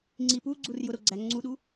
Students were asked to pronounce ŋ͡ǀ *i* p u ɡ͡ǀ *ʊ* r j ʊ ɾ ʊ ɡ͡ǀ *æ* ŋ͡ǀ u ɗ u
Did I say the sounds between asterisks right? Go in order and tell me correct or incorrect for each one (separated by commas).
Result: correct, incorrect, correct